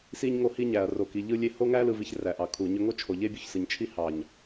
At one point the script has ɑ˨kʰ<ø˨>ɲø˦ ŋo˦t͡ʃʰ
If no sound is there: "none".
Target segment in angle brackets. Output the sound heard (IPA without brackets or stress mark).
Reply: u˨